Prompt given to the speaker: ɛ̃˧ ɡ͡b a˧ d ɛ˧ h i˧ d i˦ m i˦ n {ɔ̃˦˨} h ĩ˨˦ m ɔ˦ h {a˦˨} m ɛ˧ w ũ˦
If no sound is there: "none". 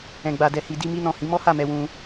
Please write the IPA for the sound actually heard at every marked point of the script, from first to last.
ɔ̃˦˨, a˦˨

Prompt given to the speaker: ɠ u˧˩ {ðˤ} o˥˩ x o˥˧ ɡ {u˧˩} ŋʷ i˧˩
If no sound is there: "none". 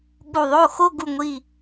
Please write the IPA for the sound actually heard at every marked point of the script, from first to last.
ðˤ, u˧˩

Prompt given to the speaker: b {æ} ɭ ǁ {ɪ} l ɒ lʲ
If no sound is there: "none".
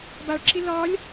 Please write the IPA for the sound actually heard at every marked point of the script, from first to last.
a, ɪ

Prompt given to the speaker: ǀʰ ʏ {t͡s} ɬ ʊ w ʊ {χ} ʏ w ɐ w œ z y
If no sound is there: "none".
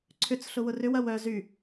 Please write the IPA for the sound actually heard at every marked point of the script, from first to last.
t͡s, r

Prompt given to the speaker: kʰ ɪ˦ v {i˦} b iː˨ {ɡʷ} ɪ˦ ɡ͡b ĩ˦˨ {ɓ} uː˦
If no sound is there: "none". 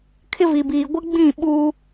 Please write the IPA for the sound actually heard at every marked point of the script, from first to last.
i˨, ɡʷ, ɓ

